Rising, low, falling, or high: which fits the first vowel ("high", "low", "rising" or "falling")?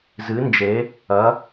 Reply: rising